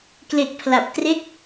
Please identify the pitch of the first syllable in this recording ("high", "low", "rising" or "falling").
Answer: low